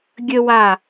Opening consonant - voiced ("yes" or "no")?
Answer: yes